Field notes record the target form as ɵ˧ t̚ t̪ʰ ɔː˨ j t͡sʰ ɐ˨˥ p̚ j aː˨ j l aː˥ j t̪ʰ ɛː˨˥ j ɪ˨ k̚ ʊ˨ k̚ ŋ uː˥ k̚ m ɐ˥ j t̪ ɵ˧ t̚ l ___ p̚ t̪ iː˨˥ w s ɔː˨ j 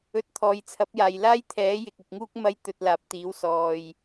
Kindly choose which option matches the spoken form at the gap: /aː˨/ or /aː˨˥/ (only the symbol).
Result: aː˨